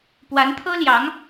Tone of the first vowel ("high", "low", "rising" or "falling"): rising